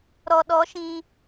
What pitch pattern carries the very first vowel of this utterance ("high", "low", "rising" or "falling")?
low